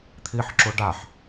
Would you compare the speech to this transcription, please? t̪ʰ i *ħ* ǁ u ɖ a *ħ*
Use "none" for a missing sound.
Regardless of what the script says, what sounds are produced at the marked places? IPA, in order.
ħ, ħ

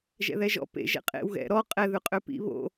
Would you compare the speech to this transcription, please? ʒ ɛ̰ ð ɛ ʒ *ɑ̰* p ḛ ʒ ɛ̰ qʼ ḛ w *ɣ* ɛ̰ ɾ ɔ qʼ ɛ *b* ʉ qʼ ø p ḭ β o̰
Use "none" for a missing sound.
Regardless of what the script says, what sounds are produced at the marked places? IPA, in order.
ɔ̰, ɣ, ð

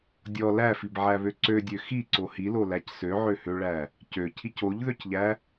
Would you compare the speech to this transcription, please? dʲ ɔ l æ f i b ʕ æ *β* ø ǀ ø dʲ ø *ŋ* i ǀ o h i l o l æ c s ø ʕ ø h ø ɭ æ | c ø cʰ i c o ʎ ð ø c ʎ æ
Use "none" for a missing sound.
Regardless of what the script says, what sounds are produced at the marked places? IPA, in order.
β, x

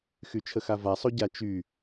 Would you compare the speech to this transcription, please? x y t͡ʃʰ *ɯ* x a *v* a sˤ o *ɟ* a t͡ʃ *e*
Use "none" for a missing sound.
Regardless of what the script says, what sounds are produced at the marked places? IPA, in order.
ə, v, ɟ, y

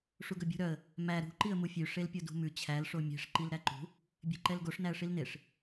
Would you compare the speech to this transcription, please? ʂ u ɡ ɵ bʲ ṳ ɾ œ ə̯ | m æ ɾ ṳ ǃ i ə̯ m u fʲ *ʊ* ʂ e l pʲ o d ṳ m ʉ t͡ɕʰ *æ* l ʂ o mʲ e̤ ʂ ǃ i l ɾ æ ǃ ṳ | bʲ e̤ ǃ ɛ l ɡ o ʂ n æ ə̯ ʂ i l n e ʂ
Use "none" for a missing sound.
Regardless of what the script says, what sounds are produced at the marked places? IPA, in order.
ʉ, æ

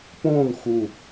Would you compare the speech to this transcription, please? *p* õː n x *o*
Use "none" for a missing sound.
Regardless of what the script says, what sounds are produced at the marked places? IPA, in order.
p, u

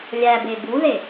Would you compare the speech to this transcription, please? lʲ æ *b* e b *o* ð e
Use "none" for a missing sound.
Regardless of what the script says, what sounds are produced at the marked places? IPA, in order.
b, u

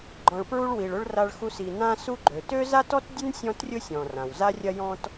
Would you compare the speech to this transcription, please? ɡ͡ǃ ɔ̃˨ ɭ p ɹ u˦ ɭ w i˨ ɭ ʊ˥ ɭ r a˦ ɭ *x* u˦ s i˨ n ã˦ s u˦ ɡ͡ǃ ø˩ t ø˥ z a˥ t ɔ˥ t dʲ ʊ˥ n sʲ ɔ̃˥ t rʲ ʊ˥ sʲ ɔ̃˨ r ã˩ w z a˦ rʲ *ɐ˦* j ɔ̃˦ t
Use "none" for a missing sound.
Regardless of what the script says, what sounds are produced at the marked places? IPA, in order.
x, ɐ˦

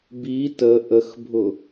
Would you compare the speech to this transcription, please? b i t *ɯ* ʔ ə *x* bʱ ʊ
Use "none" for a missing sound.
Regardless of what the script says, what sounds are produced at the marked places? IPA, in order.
ə, x

